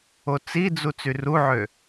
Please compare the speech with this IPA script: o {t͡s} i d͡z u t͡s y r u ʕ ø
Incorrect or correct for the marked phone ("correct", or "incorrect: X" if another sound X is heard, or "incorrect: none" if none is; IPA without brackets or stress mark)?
correct